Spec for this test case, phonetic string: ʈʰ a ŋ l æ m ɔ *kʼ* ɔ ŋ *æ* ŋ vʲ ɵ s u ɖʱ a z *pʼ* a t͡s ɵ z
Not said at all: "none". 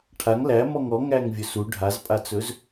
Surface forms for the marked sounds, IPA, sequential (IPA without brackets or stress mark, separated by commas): ŋ, æ, pʼ